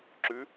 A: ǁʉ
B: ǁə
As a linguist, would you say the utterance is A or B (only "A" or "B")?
A